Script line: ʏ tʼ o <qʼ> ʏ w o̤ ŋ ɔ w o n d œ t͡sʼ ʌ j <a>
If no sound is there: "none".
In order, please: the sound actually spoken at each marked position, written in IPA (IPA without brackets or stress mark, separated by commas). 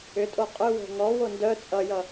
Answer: qʼ, ʌ